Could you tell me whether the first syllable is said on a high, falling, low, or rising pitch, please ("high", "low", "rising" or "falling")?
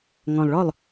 low